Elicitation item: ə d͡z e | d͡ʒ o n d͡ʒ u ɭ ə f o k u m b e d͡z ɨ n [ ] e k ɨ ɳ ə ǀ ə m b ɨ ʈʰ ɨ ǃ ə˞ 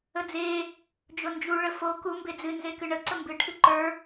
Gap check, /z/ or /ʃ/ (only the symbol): z